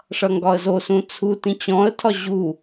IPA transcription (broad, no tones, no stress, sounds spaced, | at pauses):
ʂ ʌ ŋ ɡ ɒ ə̯ z o s ũ t͡sʰ u t ĩ t͡ɕ ɔ̃ ə̯ tʰ ɒ ʑ u